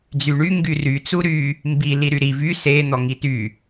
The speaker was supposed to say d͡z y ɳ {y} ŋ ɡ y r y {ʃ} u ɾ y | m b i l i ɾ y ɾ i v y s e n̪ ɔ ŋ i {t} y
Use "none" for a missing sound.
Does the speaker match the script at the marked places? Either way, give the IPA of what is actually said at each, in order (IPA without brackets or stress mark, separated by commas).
y, t͡s, t